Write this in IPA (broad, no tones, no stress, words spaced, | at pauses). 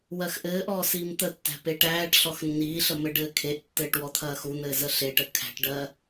wɜxʔɘːʔɔː siːmt̪ətːæ̤ peʈæːʈɬɔx nːiːɬə mɘɖɘːkʰeʔtːɘːʈ wɔt̪ʰɐːxun̪ɘː zəɬeʈə kʰæ̤ʈɖɜ